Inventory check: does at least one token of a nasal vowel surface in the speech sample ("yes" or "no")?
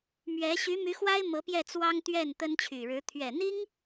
no